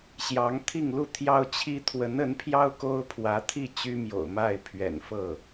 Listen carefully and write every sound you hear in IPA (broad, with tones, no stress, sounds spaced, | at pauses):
ɕ j ɑ˧˥ ŋ t̪ʰ i˥˧ ŋ l u˥˩ t̪ʰ j ɑ˥ ʊ̯ t͡ɕʰ i˥ t̪ʰ w ə˧˥ n ə˧˥ n pʰ j ɑ˥ ʊ̯ k o˥ ʊ̯ pʰ w ä˧˥ t̪ʰ i˥˩ t͡ɕ y˥ m j o̰˨˩ ʊ̯ m a˥˩ ɪ̯ pʰ ɥ ɛ̰˨˩ n f ɤ˥˩